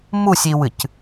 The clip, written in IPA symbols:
m u sʲ i w ɨ c

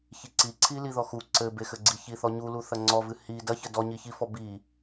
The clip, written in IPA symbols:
ç i ǀ i ǀʰ i l i ð ɔ x u ǀ ɘ b e x ɘ ɡ͡ǀ i ç i θ ɔ ɲ u l u θ ɐ ŋ͡ǀ ɔ v ɨ h i d ɐ ç ɘ d ɔ ɲ i ç i f ɔ b i

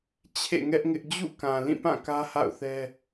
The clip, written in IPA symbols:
t͡ɕʰ ḛ˦˨ ŋ ɛ˦ ʔ ŋ ɪ˦ ʔ d͡ʑ ṵ˦˨ k ã˨ l ĩ˦˨ p ã˦˨ k ä˦ h a̰˦˨ ʊ̯ θ ɛ˦

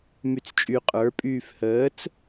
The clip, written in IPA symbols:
m y t͡s t͡ʃʼ y qʼ ə˞ pʼ yː f h əː t͡s

